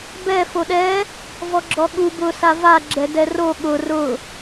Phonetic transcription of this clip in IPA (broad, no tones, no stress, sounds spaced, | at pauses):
b ɛ f o ɗ ɛ | v ɔ ɡ͡ǁ ɔ ɠ u b ʊ s a v a ɡ͡ǁ ɛ d ɛ r o ɠ ʊ r ʊ